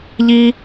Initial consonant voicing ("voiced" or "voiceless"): voiced